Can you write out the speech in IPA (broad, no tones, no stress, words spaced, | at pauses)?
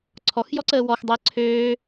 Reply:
ǀʰɔxjɔǀəː wɔxdˤəː ǀʰøː